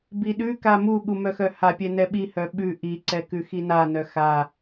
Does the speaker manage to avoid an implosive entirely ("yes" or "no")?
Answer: no